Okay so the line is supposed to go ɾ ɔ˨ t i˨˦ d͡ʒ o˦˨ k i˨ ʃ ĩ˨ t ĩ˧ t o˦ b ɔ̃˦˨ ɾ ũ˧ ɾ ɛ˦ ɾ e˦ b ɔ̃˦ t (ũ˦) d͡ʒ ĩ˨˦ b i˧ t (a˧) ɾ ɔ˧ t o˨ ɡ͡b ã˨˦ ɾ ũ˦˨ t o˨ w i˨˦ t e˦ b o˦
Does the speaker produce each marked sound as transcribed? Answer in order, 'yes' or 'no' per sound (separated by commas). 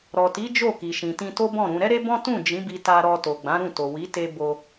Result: no, yes